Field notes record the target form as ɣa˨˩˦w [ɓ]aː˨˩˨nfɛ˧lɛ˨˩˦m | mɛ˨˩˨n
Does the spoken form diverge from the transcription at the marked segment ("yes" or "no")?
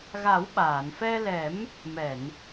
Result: no